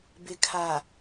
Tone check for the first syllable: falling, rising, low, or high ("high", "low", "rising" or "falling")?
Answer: low